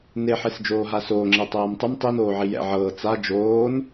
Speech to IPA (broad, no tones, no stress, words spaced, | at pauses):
neħesd͡ʒoː ɦasoːŋ͡ǁe tˤɤːmtˤɯm tˤinoːʕi jɛ̰ ʕɤː t͡sa d͡ʒoːn